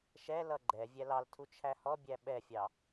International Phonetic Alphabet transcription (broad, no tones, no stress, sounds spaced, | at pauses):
ʃ ɛ l ʌ ɡ͡ǃ ɛ vʲ æ l ɑ l tʰ u t͡ʃʰ æ h ɔ bʲ æ ɓ ɛ fʲ ɑ